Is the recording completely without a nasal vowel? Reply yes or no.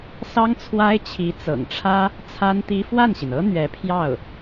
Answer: yes